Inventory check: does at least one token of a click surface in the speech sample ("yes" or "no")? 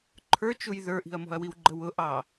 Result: yes